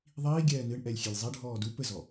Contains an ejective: no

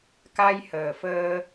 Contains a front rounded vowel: no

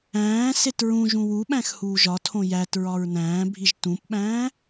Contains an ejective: no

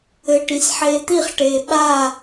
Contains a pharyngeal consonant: yes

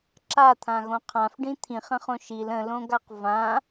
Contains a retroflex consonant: yes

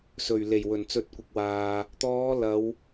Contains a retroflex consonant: no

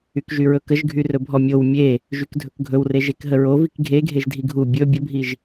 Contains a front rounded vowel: yes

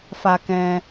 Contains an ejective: no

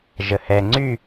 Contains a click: yes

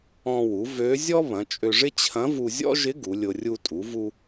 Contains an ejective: yes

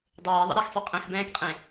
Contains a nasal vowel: yes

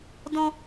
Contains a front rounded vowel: no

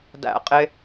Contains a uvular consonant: yes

